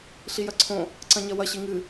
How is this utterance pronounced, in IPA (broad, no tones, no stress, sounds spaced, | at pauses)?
ɬ i j ɐ ǀʰ õ | ǀ ɐ̃ ɲ ɐ w ɐ ɕ i ŋ ɨ